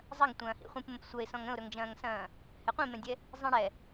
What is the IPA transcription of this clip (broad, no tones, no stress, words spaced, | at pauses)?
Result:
zˤɐŋtʷɐ̃ː hḭχʷĩpmə̃p sʷɐɪ̯sɔ̃ŋ ə̃ʊ̯ɾɵŋd͡ʒɐ̃ːŋsɐ̃ː | hɛqʷĩmɛ̃dʲɛ | zˤĩɽɛ